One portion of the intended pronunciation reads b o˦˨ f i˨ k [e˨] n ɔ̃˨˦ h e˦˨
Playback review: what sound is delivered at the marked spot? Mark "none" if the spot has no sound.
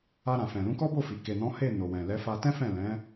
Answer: e˨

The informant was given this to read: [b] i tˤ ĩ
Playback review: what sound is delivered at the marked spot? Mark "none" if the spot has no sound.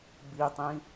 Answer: b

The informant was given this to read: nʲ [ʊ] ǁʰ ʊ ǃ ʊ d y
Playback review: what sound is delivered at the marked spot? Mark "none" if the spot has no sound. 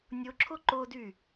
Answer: ʊ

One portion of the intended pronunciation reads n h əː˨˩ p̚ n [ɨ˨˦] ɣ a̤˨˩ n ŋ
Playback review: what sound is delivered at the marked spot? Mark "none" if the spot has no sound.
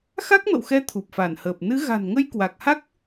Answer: ɨ˨˦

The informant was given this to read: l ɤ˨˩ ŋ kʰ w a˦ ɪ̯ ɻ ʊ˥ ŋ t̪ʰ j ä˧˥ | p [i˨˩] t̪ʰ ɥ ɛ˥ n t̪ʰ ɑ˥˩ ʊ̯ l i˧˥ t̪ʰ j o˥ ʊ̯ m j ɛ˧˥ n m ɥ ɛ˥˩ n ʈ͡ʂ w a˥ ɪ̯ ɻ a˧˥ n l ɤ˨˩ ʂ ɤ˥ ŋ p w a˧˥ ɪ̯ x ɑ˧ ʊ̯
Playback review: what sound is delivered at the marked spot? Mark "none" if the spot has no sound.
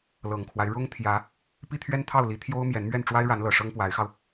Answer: i˥˩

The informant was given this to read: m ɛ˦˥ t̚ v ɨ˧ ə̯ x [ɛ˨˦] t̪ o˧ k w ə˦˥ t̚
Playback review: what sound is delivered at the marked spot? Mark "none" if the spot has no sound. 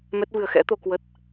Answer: ɛ̰˧˥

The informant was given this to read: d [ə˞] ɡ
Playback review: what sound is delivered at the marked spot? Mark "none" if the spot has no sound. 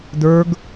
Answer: ə˞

